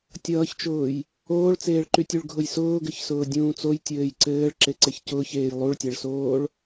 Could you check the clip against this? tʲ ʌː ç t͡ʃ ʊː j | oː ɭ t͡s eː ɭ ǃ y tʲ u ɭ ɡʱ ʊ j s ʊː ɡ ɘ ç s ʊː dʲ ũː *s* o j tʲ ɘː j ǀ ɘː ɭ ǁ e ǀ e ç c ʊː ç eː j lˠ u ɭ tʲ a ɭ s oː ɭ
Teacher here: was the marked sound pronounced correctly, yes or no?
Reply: no